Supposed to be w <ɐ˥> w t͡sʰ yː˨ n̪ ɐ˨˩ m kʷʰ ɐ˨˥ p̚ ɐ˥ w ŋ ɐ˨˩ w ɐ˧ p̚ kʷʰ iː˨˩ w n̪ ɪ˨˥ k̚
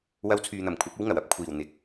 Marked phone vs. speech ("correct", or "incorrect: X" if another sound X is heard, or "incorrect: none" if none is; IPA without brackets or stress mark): incorrect: ɐ˧